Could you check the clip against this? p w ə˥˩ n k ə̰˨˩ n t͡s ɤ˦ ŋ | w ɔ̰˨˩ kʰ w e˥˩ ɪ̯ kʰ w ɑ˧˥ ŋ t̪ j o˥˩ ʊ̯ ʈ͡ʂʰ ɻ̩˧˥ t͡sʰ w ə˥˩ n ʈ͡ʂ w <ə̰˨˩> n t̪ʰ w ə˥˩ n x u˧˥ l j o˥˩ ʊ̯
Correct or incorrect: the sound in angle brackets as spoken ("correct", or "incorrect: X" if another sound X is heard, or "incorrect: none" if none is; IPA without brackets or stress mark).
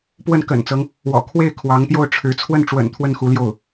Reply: correct